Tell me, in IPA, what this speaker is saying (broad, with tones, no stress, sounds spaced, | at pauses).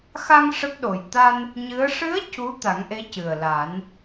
x a˧ ŋ ʂ ə˦˥ k̚ ɗ o˨˩ j t̪ a˧ n | ɲ ɨ˧˥ ə̯ ʂ ɨ˧˥ ə̯ c u˧˥ t̪ a˨˩˦ ŋ ʔ e˧˥ c ɨ˨˩ ə̯ l a˨˩˦ n